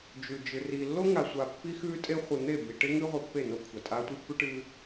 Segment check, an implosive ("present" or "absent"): absent